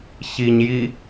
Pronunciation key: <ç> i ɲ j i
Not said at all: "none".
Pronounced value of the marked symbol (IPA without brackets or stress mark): ç